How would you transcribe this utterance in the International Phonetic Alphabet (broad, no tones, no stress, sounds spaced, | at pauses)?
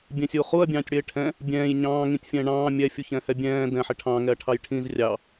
bʲ ɛ̃ sʲ uː χ u ɐ̯ bʲ ɑ̃ː tʲ ɽ ɪː ʈʰ ɛ̃ | bʲ ɛ̃ː j ɲ ɑ̃ː ŋ ĩ tʲ fʲ ɛ̃ː ɳ ɑ̃ː mʲ ɛ fʲ u ç ɛ̃ h ɛ bʲ ɛ̃ː d ɛ̃ ħ ɪ ʈʰ ɑ̃ ŋ ɛ ɐ̯ ʈʰ ɑ j ʈʰ ĩ z rʲ ɑ